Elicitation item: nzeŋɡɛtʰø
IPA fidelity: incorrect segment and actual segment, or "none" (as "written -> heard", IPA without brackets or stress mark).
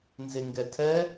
ø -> ɛ